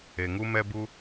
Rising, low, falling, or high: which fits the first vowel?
low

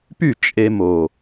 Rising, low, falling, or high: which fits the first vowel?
falling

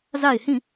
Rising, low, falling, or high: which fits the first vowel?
falling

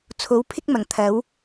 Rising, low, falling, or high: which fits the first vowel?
rising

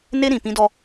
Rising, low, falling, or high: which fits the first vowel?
high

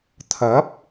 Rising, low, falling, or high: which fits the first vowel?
rising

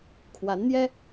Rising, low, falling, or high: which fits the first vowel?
rising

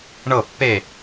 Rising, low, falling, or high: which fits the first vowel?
falling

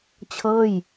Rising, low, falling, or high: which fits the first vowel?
falling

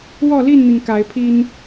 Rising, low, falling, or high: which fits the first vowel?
falling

